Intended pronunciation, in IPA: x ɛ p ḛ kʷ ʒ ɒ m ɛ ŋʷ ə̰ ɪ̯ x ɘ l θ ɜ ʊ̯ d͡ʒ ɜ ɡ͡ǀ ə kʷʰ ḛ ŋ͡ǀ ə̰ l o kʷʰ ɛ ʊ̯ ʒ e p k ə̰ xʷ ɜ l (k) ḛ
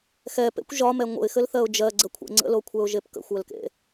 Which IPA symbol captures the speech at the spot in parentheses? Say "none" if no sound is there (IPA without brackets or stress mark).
k